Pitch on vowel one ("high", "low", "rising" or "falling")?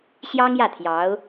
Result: high